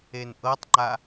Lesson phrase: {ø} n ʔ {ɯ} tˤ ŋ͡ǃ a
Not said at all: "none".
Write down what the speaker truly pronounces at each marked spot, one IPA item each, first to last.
e, ɤ

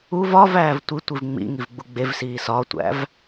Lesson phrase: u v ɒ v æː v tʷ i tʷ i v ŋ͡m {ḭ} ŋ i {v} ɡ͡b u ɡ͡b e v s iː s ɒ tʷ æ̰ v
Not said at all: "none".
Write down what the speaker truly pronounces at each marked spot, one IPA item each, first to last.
ḭ, v

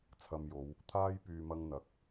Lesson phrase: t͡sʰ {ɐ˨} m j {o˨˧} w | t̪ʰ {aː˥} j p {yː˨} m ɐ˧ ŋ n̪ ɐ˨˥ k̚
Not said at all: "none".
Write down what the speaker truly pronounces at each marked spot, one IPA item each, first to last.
ɐ˨, o˨˧, aː˧, yː˨

